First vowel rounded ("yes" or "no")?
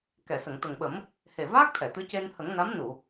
no